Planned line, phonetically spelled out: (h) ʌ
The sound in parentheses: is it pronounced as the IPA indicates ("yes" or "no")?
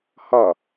yes